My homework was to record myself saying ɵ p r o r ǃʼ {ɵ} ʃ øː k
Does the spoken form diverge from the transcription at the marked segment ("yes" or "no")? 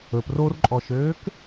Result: yes